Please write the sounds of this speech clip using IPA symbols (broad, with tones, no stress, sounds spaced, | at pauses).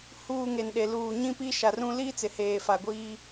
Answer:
h uː˨ ŋ e˨ n ɗ e˨ l uː˨ ɲ ĩ˦ p i˦ ʃ a˨ r ũ˦ l iː˦ t͡s ɪ˨ h eː˨ f a˨ ɡʷ iː˦